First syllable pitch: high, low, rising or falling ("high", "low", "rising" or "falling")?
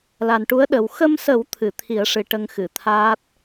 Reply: low